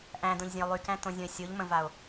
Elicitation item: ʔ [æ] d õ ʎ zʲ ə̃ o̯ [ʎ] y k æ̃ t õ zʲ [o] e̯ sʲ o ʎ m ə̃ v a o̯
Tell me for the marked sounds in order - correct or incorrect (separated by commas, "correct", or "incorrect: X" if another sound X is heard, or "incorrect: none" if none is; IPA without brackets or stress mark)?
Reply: incorrect: æ̃, incorrect: lˠ, incorrect: õ